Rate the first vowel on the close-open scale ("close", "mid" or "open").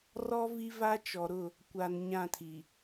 mid